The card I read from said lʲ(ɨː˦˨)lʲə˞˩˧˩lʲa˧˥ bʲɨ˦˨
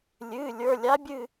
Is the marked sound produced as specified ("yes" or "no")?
no